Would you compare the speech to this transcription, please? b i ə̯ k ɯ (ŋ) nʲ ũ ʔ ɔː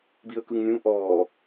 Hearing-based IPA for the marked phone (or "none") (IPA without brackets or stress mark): ŋ